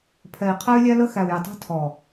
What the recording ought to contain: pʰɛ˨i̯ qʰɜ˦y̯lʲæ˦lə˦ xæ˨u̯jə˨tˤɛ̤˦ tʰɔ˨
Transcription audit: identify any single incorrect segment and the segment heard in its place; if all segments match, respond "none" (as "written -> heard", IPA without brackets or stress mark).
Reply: none